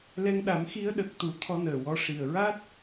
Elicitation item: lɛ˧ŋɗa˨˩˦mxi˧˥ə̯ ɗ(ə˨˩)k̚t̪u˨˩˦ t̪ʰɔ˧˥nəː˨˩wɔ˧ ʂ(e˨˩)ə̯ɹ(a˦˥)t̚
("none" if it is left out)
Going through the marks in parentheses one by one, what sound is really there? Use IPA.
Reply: ə˨˩, i˨˩, a˦˥

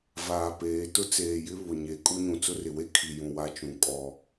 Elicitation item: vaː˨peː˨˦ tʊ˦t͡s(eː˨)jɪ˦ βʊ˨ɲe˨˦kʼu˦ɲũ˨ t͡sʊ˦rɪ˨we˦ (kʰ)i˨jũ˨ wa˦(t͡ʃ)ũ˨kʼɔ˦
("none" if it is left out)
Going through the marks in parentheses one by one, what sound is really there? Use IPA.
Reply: eː˨, kʰ, t͡ʃ

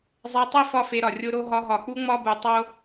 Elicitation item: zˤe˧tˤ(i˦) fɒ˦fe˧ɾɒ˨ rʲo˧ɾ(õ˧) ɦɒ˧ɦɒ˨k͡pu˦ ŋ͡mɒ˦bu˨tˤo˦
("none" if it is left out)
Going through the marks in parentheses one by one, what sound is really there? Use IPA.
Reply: i˦, o˧

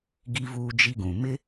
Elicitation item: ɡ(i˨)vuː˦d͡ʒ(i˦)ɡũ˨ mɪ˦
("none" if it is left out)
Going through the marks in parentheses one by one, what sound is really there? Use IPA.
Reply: i˦, i˦

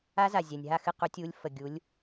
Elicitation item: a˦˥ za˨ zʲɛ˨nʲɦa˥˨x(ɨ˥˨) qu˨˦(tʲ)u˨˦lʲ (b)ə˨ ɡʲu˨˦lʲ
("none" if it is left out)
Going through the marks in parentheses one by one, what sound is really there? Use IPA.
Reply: ɨ˥˨, tʲ, f

